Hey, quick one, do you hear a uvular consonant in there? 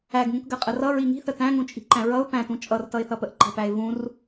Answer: yes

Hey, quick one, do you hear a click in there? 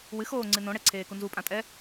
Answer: yes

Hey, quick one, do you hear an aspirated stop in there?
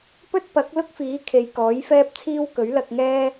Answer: yes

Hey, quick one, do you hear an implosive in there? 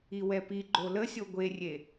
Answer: no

